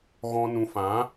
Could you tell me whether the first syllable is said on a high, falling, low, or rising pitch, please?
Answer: high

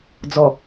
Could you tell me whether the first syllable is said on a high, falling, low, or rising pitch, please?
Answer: low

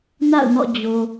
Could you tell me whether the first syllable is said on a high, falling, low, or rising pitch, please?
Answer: falling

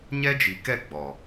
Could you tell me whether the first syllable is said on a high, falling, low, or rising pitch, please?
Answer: high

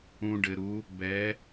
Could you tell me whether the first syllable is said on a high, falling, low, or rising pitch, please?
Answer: low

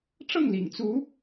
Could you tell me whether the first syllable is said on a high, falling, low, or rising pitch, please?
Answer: falling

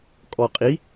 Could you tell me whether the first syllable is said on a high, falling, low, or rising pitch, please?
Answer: low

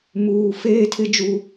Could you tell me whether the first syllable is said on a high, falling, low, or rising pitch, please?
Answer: high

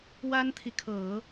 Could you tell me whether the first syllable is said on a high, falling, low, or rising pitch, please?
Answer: high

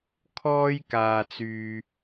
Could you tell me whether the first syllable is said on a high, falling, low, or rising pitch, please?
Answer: high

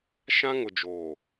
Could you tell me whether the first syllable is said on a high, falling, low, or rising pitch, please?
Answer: high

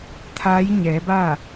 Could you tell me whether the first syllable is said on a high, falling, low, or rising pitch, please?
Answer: rising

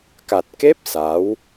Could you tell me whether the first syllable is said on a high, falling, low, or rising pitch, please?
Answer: low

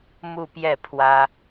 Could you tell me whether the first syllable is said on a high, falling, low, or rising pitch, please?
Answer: falling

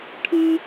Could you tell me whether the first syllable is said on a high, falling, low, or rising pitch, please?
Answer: high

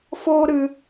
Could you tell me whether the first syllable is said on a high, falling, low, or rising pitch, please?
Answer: high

